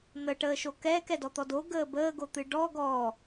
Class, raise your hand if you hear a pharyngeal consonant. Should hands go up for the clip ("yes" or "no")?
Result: no